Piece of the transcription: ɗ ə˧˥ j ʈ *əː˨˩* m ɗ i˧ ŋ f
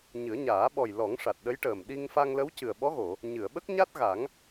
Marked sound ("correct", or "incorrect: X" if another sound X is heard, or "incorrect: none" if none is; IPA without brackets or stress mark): correct